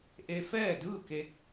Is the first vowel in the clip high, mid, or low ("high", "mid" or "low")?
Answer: mid